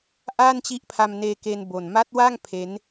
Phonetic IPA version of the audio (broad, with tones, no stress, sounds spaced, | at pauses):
ʔ a˥˩ n t͡ɕ i˦˥ ʔ pʰ a˧ m n eː˧ k e˧ n b o˨˩ n m a˦˥ t̚ w a˥˩ ŋ pʰ e˦˥ n